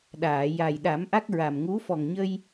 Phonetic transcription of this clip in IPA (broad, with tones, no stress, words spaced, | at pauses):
ɗaː˨˩˨ja˨˩j ɗa˨˩˦mʔa˦˥k̚ ɹa˨˩mŋu˧˥ fɔ˨˩ŋɲə˧j